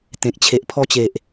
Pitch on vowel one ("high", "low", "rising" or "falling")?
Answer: low